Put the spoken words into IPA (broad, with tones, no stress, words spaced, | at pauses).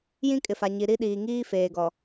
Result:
jĩ˦kʼɪ˨fa˨ ɲi˨ ɾi˦ɗiː˨ ŋiː˦feː˨ɡɔ˨